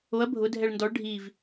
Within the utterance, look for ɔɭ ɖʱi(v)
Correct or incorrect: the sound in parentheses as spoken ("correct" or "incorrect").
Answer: correct